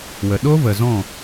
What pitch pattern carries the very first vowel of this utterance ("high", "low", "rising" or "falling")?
low